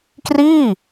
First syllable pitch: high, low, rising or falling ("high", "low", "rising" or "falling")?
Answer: falling